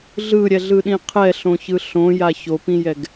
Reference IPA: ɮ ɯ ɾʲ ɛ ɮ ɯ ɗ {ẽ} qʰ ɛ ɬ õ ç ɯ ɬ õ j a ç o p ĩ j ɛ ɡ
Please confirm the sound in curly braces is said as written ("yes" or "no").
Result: no